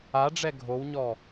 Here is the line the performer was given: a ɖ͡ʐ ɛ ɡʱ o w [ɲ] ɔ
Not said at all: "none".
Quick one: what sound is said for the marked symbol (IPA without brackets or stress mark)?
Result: ɲ